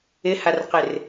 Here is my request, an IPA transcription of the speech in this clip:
ɪ h a r q ɪ r

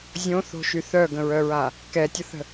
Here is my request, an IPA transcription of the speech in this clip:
zʲ õ θ o̤ ʃ y θ œ ɡ ə̃ ɹ œ ɹ a | k ɛ tʲ ə θ ə̤

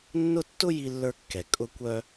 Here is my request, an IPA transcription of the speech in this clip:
nː ʊ˥ tː ʊ˥ j i˧ lː ə˞˧ kː ɛ˩ kʼ ʊ˧ kʷ œ˧

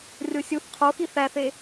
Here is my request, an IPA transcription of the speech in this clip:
rʲ o sʲ u θ qʰ o x i θ æ θ e

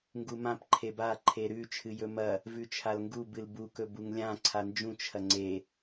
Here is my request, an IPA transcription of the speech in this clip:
ŋ ɡ u m ã p ǃʰ e b a ǃʰ e ɾ ʉ t͡ʃʰ ɨ j ɵ m ɐ | v ʉ t͡ʃʰ a l ŋ ɡ u b ɨ l b u k ɵ b u ŋ lʲ ã ǀʰ a n d͡ʒ ũ t͡ʃʰ ɐ ŋ͡ǀ e

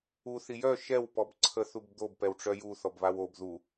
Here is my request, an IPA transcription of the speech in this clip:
u θ i j œ ʃ ɛ w p ɔ b ǀʰ ə θ u b d̪ o b p ɛ w ʈ͡ʂ œ j u θ ɔ b β a w o b ð u

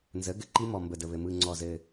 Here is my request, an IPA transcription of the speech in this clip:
n z ə˩˥ ɡ ɘ˨˩ ǃ i˦˥ m ɔ˨˩ m b ə˨˩ d ə˨˩ β ɘ˨˩ m ɯ˨˩ ŋ͡ǀ ɔ˨˩ z ɘ˨˩

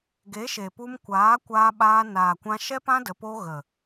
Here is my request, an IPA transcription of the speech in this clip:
ɡ e˨˦ ʃ e˨ p u˧ m kʷ aː˨˦ kʷ aː˧ ɓ aː˧ n aː˨ kʷ ã˧ ʃ ɛ˦ p ã˦ d ə˧ p o˦ ɣ ə˨

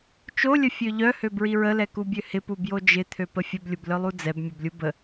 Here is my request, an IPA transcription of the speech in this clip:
t͡ʃ o lʲ ə fʲ ø ʎ œ h ø b ɹ i ɹ ə l ɛ k u bʲ ø h ɪ p u b j o d͡ʒ ɪ t̪ʰ ø p ə fʲ ə b lʲ ʊ b l œ lˠ u d͡z ɛ b mʲ o b lʲ u b ə

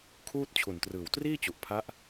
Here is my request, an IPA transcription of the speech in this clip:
kʰ uː˥˩ t̚ t͡ɕʰ u˨˩ n t r ɯː˨˩ w t r iː˥˩ t͡ɕ u˨˩ ʔ pʰ a˦˥ ʔ

